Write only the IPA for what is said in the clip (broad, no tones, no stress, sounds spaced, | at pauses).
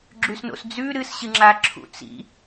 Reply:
ɡ͡ǁ ʉ s n o̰ s d͡z ʉ ɾ ɨ s ɕ ɨ ŋ͡ǁ a ǁʰ ṵ t͡s ḭ